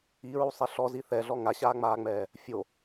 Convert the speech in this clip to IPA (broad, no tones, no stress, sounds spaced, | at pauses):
i ɹ u sˤ ɛ ɬ ɔ z i θ ɛ ɮ ɔ ŋ a ɕ aː ŋ͡m aː ŋ͡m ɛː | fʲ o